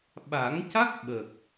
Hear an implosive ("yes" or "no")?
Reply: yes